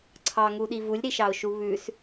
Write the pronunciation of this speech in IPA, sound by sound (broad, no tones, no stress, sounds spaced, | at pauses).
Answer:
ǀʰ ɑ ŋ u ɗ i v u lʲ ɾ i ʃ ɑ ʊ̯ ʃ u β ʉ s